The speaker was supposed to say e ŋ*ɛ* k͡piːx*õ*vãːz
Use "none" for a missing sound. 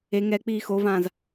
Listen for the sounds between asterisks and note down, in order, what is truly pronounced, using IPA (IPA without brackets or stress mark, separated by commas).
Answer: ɛ, o